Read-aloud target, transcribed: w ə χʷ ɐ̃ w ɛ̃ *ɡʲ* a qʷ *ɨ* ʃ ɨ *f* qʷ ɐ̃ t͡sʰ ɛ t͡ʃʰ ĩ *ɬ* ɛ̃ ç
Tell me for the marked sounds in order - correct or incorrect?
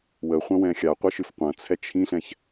incorrect: xʲ, incorrect: i, correct, correct

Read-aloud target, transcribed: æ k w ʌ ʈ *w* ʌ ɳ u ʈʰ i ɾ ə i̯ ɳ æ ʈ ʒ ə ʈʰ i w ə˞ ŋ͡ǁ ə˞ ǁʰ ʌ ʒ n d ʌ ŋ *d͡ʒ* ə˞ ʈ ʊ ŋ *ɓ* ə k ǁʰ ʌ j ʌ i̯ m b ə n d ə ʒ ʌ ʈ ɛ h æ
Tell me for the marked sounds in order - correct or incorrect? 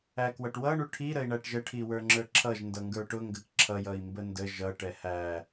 correct, incorrect: ɡ, incorrect: ɡ

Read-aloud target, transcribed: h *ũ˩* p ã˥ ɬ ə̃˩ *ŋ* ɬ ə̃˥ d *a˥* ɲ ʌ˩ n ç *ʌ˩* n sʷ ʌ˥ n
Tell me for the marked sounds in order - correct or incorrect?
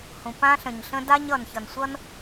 correct, incorrect: ɲ, correct, correct

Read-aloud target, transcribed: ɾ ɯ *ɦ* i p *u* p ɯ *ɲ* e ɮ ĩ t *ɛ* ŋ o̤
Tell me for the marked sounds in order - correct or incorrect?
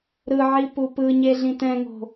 incorrect: ʕ, correct, correct, incorrect: ɛ̃

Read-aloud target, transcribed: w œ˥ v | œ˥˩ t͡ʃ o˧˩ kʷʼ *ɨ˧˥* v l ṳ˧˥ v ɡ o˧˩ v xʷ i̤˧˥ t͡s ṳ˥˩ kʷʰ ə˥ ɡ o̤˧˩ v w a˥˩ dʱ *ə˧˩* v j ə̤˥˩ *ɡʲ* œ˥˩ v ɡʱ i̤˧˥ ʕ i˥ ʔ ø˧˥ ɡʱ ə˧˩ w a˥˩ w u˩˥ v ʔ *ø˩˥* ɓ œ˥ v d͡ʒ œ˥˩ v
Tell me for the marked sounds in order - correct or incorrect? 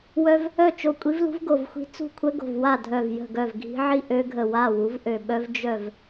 incorrect: i˧˥, incorrect: œ˧˩, incorrect: ɡ, incorrect: ø˧˩

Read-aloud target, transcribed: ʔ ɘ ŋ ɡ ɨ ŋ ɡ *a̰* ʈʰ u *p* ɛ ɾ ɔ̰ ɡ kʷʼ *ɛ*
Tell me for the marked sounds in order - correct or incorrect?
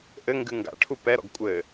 correct, correct, incorrect: ɘ

